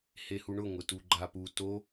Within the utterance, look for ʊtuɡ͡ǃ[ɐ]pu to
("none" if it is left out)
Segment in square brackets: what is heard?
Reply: a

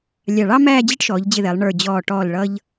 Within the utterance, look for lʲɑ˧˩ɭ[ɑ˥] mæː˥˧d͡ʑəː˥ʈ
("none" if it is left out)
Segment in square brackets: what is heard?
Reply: ɑ˥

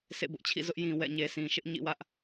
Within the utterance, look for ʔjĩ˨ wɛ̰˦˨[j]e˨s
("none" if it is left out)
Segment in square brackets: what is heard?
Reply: ɲ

